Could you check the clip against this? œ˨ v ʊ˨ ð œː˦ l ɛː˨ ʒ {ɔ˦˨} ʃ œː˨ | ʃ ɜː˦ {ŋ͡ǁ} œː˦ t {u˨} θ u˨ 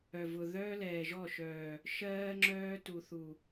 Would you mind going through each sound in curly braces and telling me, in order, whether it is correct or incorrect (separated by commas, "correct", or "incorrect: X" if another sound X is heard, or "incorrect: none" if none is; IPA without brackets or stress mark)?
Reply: correct, correct, correct